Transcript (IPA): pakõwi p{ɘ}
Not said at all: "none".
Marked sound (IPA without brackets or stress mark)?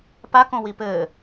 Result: ɘ